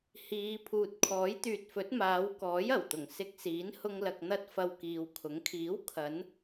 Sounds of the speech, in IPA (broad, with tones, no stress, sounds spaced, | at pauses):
h iː˨˧ pʰ uː˨ t̚ kʰ ɔː˨˥ j t̪ yː˨ t̚ f ɵ˨˥ t̚ m aː˨˧ w k ɔː˨˥ j ɐ˨˩ w t̪ ʊ˨˩ ŋ s ɪ˧ k̚ s iː˨˥ n h ʊ˧ ŋ l ɐ˨ k̚ n̪ ɐ˧ t̚ f ɐ˧ w k iː˨ w kʰ ʊ˨˥ ŋ kʰ iː˨˥ w kʰ ɐ˨˧ n